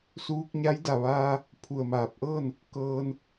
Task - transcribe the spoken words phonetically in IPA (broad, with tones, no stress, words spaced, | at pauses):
suː˧k̚ɲa˧˥jda˧˩ʋaː˧ | pʰu˧˩ə̯maː˧˩p̚ʔɤː˥˨n | kɤː˧n